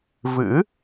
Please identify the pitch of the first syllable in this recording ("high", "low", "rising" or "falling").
rising